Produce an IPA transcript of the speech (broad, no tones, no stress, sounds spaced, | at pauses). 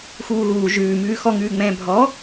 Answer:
x uː ɣ uː ʒ ʉː m ʉː x ɔ ŋ ʉː ŋ͡m ɛ̃ː bʱ ɔ